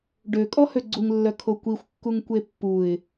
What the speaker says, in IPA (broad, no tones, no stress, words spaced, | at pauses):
ɖøkʼɔ høɡ͡ǀuŋlːœ kʰokʷixʷkːuŋ kʷepːuɪ̯